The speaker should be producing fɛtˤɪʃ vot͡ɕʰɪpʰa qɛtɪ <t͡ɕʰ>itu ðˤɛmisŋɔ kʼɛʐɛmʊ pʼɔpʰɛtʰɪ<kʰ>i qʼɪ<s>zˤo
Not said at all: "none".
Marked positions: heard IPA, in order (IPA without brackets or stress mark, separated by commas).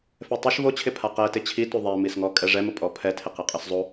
t͡ɕʰ, q, s